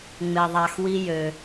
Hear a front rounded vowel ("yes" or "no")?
yes